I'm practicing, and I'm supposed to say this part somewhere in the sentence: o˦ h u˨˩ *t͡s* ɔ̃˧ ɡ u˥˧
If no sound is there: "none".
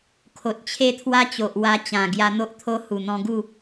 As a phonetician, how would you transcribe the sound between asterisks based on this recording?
n̪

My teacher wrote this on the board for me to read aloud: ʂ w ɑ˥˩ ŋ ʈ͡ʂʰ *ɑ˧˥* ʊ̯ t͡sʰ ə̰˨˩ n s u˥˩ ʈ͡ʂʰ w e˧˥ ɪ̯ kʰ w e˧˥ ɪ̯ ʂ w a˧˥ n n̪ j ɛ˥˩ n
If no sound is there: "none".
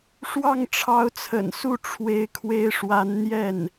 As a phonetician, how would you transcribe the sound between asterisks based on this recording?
ɑ˧˥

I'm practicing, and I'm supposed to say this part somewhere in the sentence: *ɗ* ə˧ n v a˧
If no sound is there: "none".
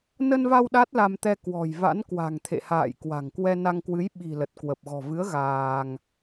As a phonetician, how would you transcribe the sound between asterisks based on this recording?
n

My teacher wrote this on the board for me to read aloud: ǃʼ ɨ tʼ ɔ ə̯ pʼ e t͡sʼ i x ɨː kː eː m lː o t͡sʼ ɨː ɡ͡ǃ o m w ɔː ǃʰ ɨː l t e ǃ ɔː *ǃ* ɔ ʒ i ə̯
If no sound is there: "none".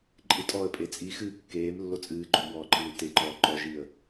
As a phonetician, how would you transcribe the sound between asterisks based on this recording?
ǃ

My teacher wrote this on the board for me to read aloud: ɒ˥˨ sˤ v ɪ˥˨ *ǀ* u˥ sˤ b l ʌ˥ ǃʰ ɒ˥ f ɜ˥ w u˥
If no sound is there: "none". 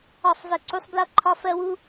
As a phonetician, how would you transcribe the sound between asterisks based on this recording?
ǀ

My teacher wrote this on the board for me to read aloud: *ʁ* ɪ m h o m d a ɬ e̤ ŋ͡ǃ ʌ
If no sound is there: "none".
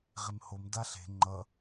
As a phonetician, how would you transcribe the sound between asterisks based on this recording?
ʁ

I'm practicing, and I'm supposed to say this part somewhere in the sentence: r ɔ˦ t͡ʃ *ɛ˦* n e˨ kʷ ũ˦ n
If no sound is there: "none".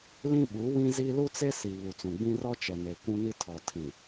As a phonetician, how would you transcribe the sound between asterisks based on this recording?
ɛ˨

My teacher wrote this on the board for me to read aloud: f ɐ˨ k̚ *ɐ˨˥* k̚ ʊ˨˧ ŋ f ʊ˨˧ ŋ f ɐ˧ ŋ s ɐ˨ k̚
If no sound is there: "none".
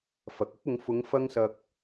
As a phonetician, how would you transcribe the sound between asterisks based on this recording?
ɐ˥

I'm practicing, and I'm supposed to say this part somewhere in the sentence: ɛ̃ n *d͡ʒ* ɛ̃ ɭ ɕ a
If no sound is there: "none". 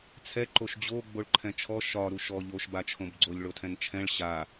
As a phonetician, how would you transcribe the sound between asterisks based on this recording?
t͡ʃʰ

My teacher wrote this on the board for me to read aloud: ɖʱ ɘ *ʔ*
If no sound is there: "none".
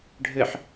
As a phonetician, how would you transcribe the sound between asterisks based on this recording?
ħ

